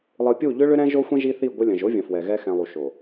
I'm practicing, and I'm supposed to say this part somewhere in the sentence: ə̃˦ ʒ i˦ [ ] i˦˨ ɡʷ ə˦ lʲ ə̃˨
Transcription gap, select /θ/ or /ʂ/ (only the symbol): θ